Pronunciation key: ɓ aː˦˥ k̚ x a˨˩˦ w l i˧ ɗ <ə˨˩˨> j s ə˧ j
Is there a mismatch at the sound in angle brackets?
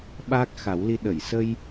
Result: no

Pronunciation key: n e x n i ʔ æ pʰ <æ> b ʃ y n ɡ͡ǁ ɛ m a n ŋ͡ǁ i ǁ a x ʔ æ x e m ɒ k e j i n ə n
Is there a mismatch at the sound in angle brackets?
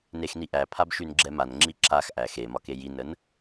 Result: yes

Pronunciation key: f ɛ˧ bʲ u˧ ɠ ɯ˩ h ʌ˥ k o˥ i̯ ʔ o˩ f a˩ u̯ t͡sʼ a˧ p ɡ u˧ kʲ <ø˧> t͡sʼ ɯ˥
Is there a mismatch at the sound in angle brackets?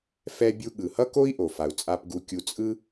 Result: yes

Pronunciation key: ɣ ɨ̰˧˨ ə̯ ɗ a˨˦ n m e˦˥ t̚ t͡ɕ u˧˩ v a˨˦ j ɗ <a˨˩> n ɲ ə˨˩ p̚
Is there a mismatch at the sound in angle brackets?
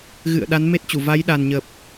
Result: no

